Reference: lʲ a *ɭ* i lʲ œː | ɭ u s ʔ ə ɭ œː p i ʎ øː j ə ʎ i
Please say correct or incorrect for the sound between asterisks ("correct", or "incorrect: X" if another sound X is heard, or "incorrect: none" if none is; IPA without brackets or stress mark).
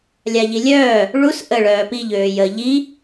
incorrect: ʎ